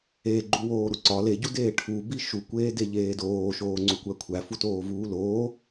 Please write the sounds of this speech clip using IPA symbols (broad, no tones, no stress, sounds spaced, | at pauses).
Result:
e ɡ͡ǃ u w oː ɾ u ǀ ɒ l e ɟ u d eː ʈʰ u b i ʃ u kʷ eː d e ʎ eː d oː ʃ oː ŋ͡ǀ u kʷ æ kʷʰ æ f u t oː v uː l oː